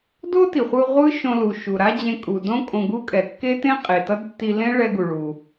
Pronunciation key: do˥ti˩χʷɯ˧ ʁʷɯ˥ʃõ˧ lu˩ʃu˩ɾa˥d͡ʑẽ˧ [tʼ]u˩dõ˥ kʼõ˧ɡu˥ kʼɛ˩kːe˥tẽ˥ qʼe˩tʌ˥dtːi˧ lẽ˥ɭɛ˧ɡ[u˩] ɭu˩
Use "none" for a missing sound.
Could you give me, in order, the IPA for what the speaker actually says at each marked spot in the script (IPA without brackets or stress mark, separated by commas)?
kʼ, u˩